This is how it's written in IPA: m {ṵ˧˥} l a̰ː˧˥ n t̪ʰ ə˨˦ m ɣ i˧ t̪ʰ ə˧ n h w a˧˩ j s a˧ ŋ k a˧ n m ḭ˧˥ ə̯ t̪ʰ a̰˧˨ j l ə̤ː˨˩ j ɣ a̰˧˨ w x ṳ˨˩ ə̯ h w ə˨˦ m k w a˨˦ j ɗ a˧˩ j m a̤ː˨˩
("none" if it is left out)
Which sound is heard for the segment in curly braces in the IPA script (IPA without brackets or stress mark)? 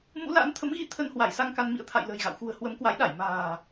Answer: ṵ˧˥